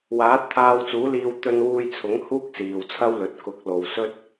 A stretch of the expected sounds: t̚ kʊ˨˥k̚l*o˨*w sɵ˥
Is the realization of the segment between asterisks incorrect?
no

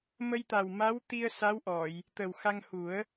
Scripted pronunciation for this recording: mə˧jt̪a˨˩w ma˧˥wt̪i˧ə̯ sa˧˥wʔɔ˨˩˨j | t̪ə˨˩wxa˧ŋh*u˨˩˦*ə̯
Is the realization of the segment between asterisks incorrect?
no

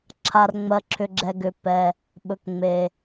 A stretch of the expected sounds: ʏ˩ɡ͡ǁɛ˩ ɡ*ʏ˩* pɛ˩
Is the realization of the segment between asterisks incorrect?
no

